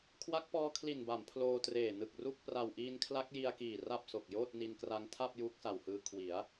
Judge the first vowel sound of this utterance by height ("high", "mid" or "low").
low